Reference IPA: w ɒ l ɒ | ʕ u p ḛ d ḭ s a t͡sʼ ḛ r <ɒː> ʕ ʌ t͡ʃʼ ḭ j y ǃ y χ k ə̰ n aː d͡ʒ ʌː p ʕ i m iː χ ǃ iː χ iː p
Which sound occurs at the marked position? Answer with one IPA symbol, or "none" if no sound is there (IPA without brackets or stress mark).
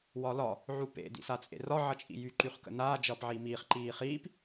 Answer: ɒ